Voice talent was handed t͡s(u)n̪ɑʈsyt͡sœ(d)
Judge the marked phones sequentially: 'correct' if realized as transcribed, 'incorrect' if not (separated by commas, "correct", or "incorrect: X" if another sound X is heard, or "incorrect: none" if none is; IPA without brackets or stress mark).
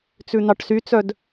incorrect: ʉ, correct